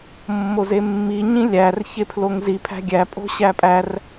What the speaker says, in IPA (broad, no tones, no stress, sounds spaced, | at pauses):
mː o z e mː i ɲ ĩ lʲ æ r ç e pʰ l o ŋ z i pʰ æ̤ ɡʲ æ pʼ o̤ ɕ æ pʼ æ r